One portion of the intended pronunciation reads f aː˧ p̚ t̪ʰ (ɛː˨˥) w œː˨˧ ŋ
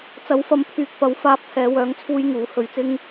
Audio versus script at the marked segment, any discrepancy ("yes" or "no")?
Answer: yes